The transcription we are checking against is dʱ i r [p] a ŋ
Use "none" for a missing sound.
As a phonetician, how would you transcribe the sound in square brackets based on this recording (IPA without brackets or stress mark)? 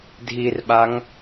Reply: ɓ